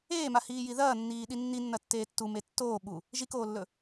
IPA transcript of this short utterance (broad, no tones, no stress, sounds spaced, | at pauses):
eː m a h iː j i ð ɐː nː iː ɗ i nː i nː ɐ tː eː tː u m e tː oː ɓ u | ʒ i k oː lː ɵ